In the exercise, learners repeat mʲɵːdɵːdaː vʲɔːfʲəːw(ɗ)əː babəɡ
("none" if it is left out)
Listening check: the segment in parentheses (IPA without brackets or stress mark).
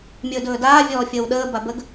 ɗ